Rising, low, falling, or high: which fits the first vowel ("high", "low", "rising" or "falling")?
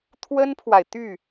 high